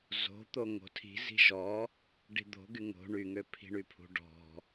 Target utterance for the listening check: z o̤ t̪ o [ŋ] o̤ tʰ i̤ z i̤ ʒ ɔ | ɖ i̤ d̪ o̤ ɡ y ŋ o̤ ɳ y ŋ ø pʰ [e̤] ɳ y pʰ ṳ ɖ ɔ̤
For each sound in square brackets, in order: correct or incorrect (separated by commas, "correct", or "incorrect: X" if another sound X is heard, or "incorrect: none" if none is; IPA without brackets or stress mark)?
correct, incorrect: i̤